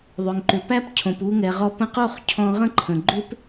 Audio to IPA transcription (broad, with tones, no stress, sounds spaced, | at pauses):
ðˤ ʏ˨ ŋ ǃ ʏ˨ p æ˦ p cʰ õ˨ p u˧ ŋ ɛ˨ ʁ ɔ˧ p ə̃˧ q o˦˨ χ cʰ ɔ̃˧ ʁ ə̃˦ ǃʰ ə̃˨ ɡ͡ǃ ʏ˦ p